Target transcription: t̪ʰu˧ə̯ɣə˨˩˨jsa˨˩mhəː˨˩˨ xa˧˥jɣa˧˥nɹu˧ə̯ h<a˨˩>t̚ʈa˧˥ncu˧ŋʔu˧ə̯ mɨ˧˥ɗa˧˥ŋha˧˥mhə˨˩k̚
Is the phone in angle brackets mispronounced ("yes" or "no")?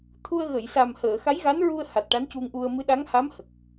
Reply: no